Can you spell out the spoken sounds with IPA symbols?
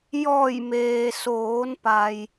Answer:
j ɔː˧˩ j m eː˩ s oː˩˧ n p a˧ j

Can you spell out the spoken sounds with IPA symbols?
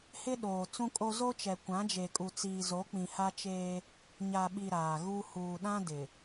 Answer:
h ɪ˦ ɗ oː˨ t͡s ũ˦ kʼ o˦ z o˦ t͡ʃ ɛ˨ kʷ ã˨˦ d͡ʒ e˨ kʼ u˨ t͡s iː˨ z o˨˦ k͡p ĩ˨ h a˦ t͡ʃ eː˦ | ɲ a˨ ɓ i˨ ɾ aː˨ ɣ u˦ h uː˨ ɗ ã˦ d ɪ˨

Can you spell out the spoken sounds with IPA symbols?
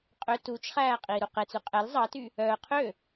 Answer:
qʼ ø t u t͡ʃ χ æː qʼ iː ɾ u q e t͡s ʉ qʼ ɛ l zˤ ɑ t y | œː qʰ ø

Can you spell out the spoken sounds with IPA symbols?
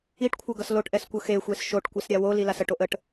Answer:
i ʈ kʷʰ ɤ ɡ ʌ s l o ʈ ʔ ɛ s kʷ ɤ x e xʷ e s ʃ o ʈ kʷ ɛ s ɾʲ a w o l i l a s ə ʈ o ʔ ə ʈ

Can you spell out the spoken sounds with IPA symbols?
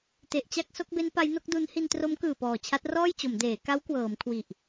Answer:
t e˨˩ ʔ t͡ɕ a˥˩ k̚ s o˦˥ k̚ b e˦˥ n p a˦˥ j n o˦˥ k̚ d u˦˥ n h i˧ n t r o˦˥ m k ɯː˨˩ p ɔː˨˩ t͡ɕʰ a˦˥ t̚ r ɔː˥˩ j t͡ɕ o˩˦ m d eː˩˦ k a˦˥ w k w ɤː˩˦ m kʰ w i˨˩ ʔ

